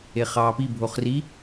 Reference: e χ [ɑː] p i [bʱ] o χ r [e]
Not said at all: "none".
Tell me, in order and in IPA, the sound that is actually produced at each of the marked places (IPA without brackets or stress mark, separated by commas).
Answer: ɑː, bʱ, i